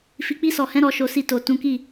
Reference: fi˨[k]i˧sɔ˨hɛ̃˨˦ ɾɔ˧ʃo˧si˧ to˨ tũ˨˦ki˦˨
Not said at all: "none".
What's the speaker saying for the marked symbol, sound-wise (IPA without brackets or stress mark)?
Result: k͡p